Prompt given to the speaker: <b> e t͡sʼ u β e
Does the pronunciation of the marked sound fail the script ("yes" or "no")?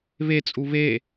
yes